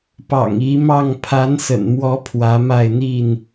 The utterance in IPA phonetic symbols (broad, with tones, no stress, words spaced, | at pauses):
pɑ̰˨˩ŋi˨˦mɑ˥˨ŋ pʰa˨˦nsə̰˨˩nmwɔ˨˦ pʰwä˨˦ma˥˨ɪ̯n̪i˥˨n